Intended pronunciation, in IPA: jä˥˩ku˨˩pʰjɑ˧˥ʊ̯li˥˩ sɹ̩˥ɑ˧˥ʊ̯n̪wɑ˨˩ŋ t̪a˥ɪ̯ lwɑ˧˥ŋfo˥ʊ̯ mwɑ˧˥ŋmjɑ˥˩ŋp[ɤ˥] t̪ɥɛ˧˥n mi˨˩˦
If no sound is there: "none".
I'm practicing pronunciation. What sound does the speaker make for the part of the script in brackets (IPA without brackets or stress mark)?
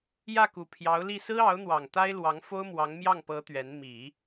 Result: ɤ˧˥